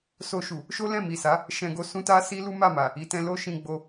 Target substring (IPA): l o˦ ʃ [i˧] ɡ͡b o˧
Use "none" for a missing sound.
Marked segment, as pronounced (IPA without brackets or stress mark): ĩ˧